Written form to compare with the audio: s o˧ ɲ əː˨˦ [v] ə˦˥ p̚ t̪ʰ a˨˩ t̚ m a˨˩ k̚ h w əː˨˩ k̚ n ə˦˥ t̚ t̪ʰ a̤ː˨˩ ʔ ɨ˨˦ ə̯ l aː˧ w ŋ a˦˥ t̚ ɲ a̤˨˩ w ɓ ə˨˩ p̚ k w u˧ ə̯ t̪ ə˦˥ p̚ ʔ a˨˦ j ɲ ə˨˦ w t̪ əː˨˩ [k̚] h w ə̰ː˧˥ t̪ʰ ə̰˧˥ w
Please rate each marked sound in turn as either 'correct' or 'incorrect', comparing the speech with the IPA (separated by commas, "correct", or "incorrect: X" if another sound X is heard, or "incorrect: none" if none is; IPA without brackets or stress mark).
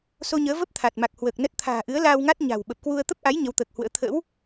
correct, correct